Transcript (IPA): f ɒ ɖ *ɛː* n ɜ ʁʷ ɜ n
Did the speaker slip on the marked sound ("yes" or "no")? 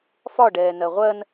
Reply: no